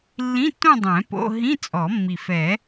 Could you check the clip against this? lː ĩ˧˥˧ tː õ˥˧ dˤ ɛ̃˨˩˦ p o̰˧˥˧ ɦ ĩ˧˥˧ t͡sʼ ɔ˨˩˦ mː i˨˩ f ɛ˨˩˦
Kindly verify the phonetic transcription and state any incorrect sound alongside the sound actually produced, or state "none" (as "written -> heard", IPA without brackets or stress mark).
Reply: none